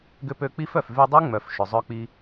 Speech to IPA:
ɡ ʏ˧ p ø˧ k͡p i˦ f œ˨ f v y˧ dˤ u˦ ŋ͡m œ˨ f ʃ ʏ˨ zˤ œ˦ k͡p i˦

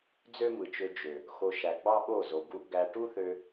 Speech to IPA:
d͡z ø˦ m ɯ˨ t͡ʃ ø˧ d͡ʒ ø˨ | x o˧ ʃ æ˨ ɡ͡b ɑ˦ ɓ o˦˨ z o˨ ɡ u˧ ʔ ɡ æ˧ ʈ u˦ θ ø˧

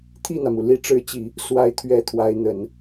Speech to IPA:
t̪ʰ i˥˩ n̪ ä˩ m u˩ l i˧˥ ʈ͡ʂ ɻ̩˧˥ t͡ɕ i˨˩˦ | s w a˧˥ ɪ̯ t̪ʰ ɥ ɛ˧˥ t̪ʰ w a˧˥ ɪ̯ n̪ ə˨˩˦ n

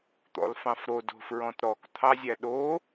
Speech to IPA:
t̪ ɔ̰ l f ɑ̃ f ɾ o d o̤ f ɹ ɔ̃ t ɾ ɔ k t̪ʰ ɑ zʲ æ ɗ o

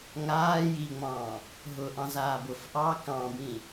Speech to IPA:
ŋ aː j i ŋ͡m ɑ̃ː | ɦ ʊ ʔ ɑ̃ z aː b ʊ f ʔ ɑː k ɑ̃ b ĩ

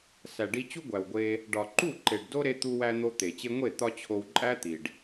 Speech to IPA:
s æ˨ ɖ i˧ t͡ɕ u˦ ɡʷ æ˨ w ɡʷ e˧ | ɖ ɒ˨ ǃ u˦˨ ǃ e˨ ɖ d o˦ ɾ e˧ t̪ u˧ w æ˧ n̪ o˧ t̪ e˨ t͡ɕ e˧ ŋʷ e˦˨ t̪ ɒ˦ t͡ɕʰ o˧ w ǃʼ æ˦ t̪ i˨ ɖ

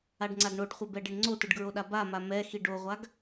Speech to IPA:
a ɖ ŋ͡ǀ a ɡ ɳ o ɖ χʷ ɛ b ɛ ɖ e ɳ ŋ͡ǀ o t ɯ ɖ ɡ ɹ o ɗ a b a m a m ɛ x i ɖ o ʁʷ a ɡ

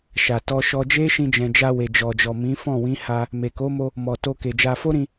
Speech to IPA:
ʃ a˨ t ɔ˧ ʃ ɔ˧ d͡ʒ e˦ ʃ ĩ˧ d͡ʒ ɛ̃˨ d͡ʒ a˧ w e˨ d͡ʒ ɔ˨ d͡ʒ ɔ˨ m ĩ˨˦ f ɔ̃˦˨ w ĩ˨˦ h a˧ | m e˨ k o˨˦ m o˧ | m ɔ˨ t o˧ k e˨ d͡ʒ a˧ f o˦ ɾ ĩ˧

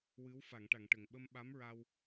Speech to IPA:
w ɨ˧˥ w f a˨˩˨ ŋ ʈ a˨˩˨ ŋ ʈ ə˨˩ ŋ ɓ ə˧ m ɓ a˧˥ m ɹ a˧ w

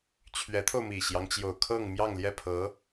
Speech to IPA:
t͡ɕʰ ɥ ɛ˧˥ t̪ʰ o˧ ʊ̯ m i˨˩ ɕ j ɑ˦ ŋ t͡ɕ j o˨˩ ʊ̯ kʰ ɤ˥˧ ŋ m j ɑ˥˧ ŋ l j ɛ˥˩ pʰ ɤ˧˥

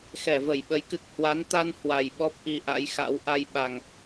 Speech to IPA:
x ɛ˧˩ v ə˧˩ j ɓ ə˨˦ j k ɨ˨˩ k̚ h w a˨˦ n t̪ a˧ n h w a˨˩ j ɓ ɔ˦˥ p̚ ʔ i˧ ʔ a̰˧˥ j x a̰˧˥ w ʔ a˧ j ɓ a˨˩ ŋ

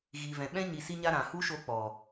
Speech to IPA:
ɣ i˨ v ɛ̃˨ ɓ ɛ̃˦ ɲ i˧ s i˦ ɲ a˦ ɾ ã˨ h u˦ ʃ o˧ k͡p ɔ˨

